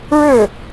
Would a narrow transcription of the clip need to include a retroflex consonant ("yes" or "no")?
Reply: yes